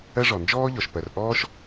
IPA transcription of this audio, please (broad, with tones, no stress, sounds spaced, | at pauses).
ɜ˥ ʐ ɔ˩ n d͡ʒ ɔː˥ ʎ ɔ˩ ʃ p ɜ˩ r ʔ ɔː˥ ʃ